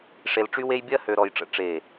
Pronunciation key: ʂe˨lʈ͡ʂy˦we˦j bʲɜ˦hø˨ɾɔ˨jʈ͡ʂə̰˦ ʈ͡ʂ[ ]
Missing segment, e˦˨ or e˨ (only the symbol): e˦˨